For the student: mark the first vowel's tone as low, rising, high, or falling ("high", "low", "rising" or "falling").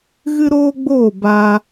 high